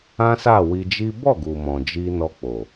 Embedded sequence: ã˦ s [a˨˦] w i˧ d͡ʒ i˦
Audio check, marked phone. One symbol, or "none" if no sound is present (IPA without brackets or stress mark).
a˦˨